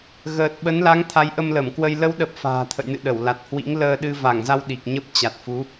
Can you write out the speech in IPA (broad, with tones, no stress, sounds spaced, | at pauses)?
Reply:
ɣ əː˨˩ t̚ ɓ ə˨˦ n l a˨˦ ŋ t̪ʰ a˨˦ j ʔ ə˧ m l ə˧˩ m k w ə˧ j l ə˨˦ w ɗ ə˨˩ p̚ f a̤ː˨˩ t̪ʰ ə̰˧˨ j n ɨ̰˧˨ ɗ ə˧˩ w l a˨˩ t̚ h w ḭ˧˥ ŋ l əː˧ ɗ ɨ˧ v a˧˩ ŋ z a˧ w ɗ i˨˩ k̚ ɲ ə˦˥ p̚ t͡ɕ a˨˩ t̚ f u˨˦